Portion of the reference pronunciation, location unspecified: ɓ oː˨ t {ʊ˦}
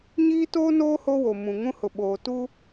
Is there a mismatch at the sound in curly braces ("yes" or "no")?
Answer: yes